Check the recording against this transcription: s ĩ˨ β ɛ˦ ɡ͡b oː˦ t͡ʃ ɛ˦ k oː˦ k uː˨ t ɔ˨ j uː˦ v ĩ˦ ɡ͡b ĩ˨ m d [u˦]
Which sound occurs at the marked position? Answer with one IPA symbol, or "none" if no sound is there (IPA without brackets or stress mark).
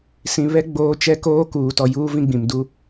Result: u˦